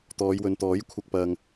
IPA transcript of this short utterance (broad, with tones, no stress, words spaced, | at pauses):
t̪ɔː˨˧jwɵ˨n t̪ɔː˨˥jkʷʰɐ˧k̚ pɐ˨ŋ